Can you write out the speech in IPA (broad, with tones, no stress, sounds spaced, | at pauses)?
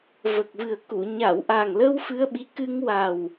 v ə˨˩ k̚ v ɨ˨˩ ə̯ k u˨˩˨ ɲ a˨˩˨ w ʔ a˨˩ ŋ l ə˧ w f ɨ˧ ə̯ ɓ i˧˥ k ɨ˧ ŋ w a˨˩ w